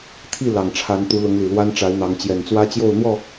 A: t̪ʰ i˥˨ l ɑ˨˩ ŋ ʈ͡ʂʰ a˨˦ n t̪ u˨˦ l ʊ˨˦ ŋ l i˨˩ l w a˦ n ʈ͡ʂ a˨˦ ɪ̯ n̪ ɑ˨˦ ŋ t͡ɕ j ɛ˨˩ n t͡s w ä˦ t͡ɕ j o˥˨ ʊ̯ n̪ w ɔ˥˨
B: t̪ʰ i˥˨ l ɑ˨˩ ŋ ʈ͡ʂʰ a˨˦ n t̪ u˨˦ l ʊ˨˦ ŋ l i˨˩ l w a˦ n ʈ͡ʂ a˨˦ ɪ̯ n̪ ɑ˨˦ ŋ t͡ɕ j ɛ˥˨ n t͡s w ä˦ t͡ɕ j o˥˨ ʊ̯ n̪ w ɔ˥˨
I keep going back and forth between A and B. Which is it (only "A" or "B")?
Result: A